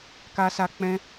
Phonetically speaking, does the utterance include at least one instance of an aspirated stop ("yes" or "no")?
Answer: no